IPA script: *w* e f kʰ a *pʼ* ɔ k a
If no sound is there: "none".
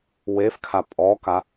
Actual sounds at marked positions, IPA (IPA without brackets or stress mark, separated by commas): w, pʼ